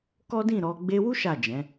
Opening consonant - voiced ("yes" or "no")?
no